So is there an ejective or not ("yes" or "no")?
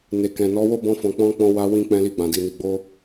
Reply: no